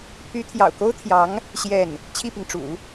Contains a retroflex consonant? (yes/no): yes